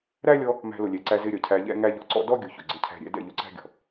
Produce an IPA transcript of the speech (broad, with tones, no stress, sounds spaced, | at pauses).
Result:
ɾ æ˦ lʲ ɔ˧ | m æ̤˧ l ʊ˨ lʲ ɛ˨ ǀ æ˧ z ɪ˧ ɾʲ ʌ˨ cʰ æ˧ ʎ ɛ̰˦ ŋ æ˦ ʎ ɔ˧ ǀ ɔ̰˦ d ɔ˦ ɡʲ ʊ˨ ç ʊ˨ ɡ͡ǀ ɪ˧ cʰ æ̤˧ ɾʲ ɛ̰˧ d ɛ̰˦˨ ʎ ʊ˧ ǀ æ̤˦ ɡʲ ɔ̤˨